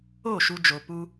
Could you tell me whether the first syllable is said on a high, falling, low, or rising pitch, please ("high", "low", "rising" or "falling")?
falling